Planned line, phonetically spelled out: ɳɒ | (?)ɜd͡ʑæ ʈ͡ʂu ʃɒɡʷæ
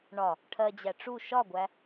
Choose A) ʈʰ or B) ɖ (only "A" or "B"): A